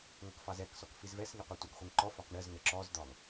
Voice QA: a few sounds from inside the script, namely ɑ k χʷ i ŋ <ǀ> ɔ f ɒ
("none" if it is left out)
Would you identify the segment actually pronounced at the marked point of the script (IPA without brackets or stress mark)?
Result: ǃ